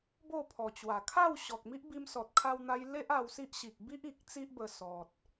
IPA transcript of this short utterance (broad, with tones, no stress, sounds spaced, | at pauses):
b o˥˧ pʰ ɔ˨˩ t͡ɕ w a˨˩ kʰ a˥˧ w ɕ ɔ˨ k̚ m i˦ ʔ b i˧ m s ɔ˨ t̚ kʰ a˧ w n̪ a˧ j l e˦ ʔ a˧ w s i˦ ʔ ɕ i˨ k̚ b i˦ ʔ i˨ k̚ t͡s i˦ ʔ b ə˧ s ɔ˨ t̚